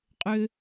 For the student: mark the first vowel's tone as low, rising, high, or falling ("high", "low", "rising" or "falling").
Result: high